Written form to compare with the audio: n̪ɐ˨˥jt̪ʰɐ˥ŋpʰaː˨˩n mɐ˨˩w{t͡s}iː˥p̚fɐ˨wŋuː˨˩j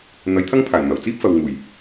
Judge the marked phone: correct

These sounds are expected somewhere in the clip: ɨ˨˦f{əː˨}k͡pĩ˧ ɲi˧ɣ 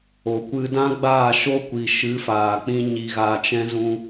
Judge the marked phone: incorrect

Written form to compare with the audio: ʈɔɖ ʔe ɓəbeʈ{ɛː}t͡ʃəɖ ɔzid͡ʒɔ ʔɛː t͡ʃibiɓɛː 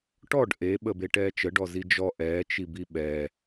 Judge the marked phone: correct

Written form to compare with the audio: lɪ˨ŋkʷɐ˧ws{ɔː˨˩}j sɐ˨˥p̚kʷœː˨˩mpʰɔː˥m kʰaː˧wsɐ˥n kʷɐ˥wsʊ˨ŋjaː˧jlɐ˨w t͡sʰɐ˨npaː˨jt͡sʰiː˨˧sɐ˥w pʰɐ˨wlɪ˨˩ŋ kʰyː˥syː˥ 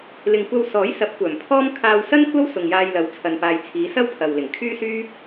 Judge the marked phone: incorrect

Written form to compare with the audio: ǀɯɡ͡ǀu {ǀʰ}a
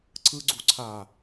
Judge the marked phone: correct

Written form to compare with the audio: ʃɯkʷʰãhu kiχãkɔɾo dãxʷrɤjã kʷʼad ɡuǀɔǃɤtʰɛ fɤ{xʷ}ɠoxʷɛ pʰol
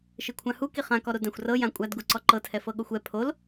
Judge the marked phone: incorrect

